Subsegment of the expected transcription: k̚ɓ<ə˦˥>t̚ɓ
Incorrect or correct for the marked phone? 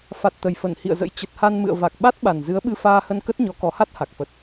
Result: incorrect: a˦˥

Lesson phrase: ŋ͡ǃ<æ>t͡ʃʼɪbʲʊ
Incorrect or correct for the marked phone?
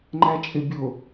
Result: correct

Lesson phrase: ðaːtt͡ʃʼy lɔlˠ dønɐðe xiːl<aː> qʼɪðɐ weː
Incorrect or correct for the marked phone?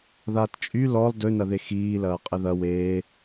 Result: incorrect: ɐː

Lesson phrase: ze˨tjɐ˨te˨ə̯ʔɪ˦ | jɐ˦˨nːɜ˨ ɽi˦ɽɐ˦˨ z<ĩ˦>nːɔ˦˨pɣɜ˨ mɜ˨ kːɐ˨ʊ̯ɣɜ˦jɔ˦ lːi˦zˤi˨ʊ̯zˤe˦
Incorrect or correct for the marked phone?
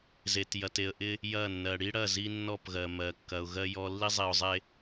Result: incorrect: i˦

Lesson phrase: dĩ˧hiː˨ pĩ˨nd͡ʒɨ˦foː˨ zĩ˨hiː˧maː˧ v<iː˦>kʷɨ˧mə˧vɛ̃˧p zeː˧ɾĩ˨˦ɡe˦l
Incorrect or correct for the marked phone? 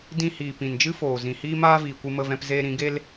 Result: incorrect: iː˨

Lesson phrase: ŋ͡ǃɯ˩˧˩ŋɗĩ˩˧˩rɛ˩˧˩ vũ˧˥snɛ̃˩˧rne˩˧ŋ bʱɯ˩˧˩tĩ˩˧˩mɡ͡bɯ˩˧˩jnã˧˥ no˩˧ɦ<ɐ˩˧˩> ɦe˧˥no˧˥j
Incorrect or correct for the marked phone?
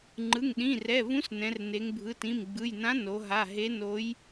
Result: incorrect: a˩˧˩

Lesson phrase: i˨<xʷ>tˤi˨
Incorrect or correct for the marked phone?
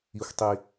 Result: correct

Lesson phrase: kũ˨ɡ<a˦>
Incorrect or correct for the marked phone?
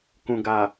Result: incorrect: a˨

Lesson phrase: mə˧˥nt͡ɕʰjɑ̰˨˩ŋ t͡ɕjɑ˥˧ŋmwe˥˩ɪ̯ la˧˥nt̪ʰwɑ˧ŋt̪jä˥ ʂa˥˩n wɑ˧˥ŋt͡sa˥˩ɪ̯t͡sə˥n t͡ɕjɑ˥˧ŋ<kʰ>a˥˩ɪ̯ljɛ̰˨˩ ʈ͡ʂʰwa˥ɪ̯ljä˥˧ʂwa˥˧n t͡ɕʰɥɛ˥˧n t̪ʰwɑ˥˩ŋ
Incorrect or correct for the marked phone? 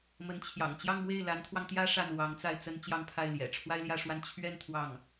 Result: incorrect: pʰ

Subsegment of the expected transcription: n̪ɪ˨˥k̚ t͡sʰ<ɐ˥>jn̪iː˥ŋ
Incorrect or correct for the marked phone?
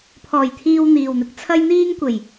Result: correct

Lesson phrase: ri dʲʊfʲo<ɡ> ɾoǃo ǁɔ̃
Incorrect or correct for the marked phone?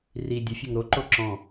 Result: incorrect: ŋ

